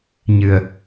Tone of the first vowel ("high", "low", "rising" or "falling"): low